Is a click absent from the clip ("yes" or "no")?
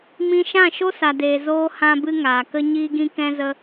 yes